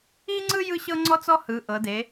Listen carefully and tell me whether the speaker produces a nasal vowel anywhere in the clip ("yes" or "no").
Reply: no